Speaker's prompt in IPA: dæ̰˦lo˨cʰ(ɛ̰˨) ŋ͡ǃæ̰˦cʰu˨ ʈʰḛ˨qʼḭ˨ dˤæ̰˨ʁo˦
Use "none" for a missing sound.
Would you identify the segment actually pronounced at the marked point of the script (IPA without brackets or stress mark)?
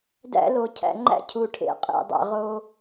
æ̰˨